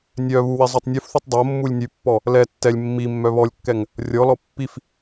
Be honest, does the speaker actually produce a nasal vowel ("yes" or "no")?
no